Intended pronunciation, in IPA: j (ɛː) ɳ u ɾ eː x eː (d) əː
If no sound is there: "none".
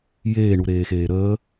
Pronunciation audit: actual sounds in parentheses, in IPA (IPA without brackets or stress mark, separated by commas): eː, ɾ